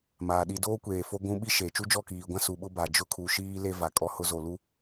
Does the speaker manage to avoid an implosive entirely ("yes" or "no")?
no